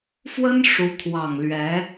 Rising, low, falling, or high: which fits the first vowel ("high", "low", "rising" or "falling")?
high